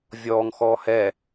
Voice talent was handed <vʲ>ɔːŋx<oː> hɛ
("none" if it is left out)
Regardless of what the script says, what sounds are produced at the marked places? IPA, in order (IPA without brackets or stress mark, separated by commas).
vʲ, ɔː